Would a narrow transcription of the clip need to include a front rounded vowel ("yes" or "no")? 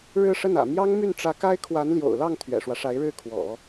yes